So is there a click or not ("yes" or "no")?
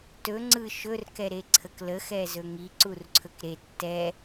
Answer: yes